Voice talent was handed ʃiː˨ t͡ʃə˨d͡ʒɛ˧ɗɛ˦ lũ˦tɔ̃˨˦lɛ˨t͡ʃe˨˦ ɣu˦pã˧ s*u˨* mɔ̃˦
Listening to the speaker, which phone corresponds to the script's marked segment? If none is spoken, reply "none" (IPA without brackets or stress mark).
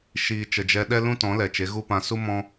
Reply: u˦